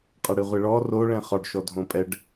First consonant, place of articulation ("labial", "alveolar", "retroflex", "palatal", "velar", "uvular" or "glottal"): uvular